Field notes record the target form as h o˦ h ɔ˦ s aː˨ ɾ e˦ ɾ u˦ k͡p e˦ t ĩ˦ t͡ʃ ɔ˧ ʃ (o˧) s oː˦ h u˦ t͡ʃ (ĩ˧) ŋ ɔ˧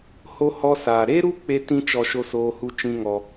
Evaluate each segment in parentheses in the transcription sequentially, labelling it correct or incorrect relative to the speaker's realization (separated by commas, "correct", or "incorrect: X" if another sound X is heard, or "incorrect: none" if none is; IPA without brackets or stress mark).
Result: incorrect: o˦, incorrect: ĩ˦